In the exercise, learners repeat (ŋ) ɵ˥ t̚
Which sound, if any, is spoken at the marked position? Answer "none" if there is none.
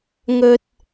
ŋ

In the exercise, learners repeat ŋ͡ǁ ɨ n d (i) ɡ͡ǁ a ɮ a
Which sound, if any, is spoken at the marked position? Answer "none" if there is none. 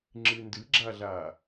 ɨ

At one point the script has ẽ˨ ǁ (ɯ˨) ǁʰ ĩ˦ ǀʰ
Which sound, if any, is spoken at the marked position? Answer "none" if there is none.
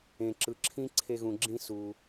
ɯ˨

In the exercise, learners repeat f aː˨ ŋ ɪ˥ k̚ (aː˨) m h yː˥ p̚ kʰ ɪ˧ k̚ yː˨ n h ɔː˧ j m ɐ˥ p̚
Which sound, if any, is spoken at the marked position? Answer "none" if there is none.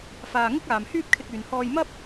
aː˨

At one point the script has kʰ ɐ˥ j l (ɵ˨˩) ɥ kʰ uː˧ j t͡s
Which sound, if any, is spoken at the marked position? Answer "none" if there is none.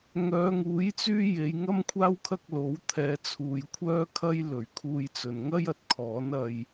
ɵ˨˩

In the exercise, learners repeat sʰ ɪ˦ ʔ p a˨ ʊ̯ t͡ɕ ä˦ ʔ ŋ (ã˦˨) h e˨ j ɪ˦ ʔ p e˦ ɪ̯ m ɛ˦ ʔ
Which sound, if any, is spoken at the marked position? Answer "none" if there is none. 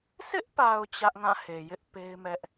ã˦˨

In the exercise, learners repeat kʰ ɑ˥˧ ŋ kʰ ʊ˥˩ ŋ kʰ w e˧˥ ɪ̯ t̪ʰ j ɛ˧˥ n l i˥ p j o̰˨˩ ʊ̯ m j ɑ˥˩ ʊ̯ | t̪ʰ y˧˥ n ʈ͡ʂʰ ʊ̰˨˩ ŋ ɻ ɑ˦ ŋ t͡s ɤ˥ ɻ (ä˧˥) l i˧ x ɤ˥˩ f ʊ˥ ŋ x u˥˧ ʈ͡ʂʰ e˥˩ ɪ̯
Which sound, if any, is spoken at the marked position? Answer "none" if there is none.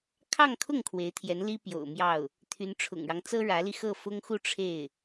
ä˧˥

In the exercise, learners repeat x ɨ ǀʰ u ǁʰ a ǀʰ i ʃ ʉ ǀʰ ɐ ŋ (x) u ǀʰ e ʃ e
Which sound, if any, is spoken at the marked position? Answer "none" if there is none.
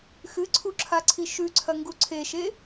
ɡ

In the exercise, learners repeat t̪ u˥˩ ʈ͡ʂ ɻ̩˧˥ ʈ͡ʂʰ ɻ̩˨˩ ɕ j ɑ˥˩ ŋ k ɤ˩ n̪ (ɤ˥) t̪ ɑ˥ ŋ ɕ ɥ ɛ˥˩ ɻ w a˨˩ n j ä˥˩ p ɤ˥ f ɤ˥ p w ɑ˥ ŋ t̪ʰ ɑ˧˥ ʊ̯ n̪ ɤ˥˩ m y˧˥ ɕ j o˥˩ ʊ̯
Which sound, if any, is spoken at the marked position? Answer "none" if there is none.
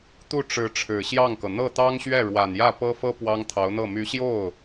ɤ˥˩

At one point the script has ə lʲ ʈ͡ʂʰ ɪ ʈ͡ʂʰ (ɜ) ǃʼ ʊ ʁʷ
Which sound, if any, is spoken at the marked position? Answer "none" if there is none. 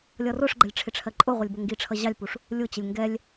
ɜ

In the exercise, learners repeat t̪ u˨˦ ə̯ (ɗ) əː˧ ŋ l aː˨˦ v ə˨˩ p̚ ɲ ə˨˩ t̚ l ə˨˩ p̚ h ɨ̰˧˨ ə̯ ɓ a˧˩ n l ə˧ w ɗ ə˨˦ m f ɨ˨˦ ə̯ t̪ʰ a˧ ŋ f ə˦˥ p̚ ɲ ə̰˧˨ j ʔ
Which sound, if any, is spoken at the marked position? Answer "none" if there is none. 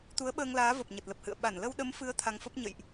ɓ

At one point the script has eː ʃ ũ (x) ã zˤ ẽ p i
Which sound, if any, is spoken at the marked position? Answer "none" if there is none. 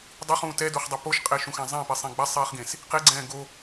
x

